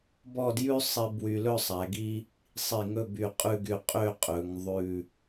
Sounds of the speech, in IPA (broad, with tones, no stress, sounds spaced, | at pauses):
b ɔ˥˧ d j ʉ˥ sˤ i˧ b w y˧ l ɵ˥˧ sˤ æ˩˧ ɡ i˥ | sˤ i˧˩ ŋ ɵ˥˧ b y˧˩ qʼ ʉ˥˧ ɡ y˧ qʼ ø˥˧ qʼ ɵ˩˧ ŋ ðˤ ʉ˧˩